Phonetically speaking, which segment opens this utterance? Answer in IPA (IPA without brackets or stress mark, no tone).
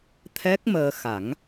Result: t̪ʰ